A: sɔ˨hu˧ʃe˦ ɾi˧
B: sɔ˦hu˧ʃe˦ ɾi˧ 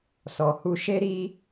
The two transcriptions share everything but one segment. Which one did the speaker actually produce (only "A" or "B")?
A